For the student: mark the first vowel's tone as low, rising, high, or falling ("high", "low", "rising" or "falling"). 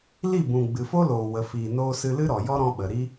falling